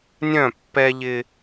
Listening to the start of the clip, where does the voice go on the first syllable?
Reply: falling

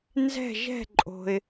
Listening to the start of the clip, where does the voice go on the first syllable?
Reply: falling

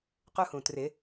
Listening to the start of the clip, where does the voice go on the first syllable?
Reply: high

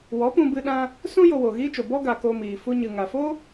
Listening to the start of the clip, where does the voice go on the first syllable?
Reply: rising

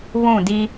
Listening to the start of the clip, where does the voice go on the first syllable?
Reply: falling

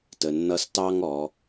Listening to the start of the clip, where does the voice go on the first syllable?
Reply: low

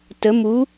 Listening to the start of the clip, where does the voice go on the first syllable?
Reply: rising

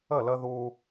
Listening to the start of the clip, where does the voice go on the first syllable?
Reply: falling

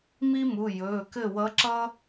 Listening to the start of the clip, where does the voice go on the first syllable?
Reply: high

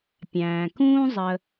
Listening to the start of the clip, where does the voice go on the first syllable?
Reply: low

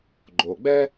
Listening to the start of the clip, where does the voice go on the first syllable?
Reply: low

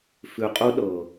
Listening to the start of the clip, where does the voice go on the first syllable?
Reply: low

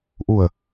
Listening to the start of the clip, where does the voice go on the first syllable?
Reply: low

